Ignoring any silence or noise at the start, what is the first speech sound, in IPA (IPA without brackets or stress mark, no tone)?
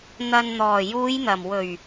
n̪